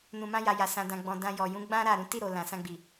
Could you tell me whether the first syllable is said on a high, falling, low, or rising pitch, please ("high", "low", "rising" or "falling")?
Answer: low